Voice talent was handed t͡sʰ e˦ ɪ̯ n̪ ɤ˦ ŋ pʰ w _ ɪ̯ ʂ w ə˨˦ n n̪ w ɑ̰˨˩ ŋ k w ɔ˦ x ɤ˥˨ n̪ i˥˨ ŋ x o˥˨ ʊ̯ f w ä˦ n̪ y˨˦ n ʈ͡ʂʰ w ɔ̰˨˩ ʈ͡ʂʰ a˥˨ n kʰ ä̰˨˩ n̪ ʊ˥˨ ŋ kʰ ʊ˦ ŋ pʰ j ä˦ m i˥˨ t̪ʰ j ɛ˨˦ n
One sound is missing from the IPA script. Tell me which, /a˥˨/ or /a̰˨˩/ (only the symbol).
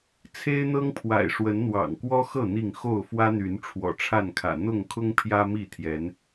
a̰˨˩